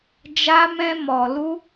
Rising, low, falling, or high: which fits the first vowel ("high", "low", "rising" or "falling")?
high